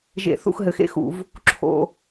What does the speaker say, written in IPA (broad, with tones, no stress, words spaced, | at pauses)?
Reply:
ʒḛ˧˩˧θṵ˦˨x ɦɘ˩˧xḛ˦˥xṵ˧˩˧v | ǁʰo̰˦˨